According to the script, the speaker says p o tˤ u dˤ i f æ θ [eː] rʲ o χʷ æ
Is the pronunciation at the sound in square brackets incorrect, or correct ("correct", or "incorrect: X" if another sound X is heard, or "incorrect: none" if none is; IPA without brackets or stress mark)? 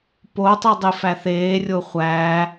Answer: correct